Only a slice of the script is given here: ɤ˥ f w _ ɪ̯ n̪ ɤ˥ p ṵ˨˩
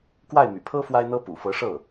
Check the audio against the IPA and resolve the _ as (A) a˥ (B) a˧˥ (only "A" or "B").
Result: A